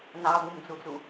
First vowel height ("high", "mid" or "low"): low